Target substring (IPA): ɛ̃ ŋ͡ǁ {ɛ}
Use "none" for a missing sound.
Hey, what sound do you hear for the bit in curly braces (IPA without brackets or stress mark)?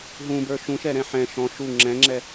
ɛ